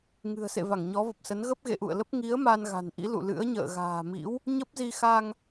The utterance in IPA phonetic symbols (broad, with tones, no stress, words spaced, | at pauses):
ŋɨ̤˨˩ə̯sḛ˧˨ va˧˩ŋɲɔ˨˦və˨˩p̚sə˨˦n ɣə˦˥p̚ɣḛ˧˨ʔṵ˧˨ə̯lə˦˥p̚ ŋi˨˦ə̯ ma˧n ɣa̤˨˩nʔḭ˧˥ lṵ˧˨lɨ̰˧˥ə̯ ɲə̰ː˧˨ɣa̤ː˨˩mḭ˧˥w | ɲə˦˥p̚zi˧ xa˧ŋ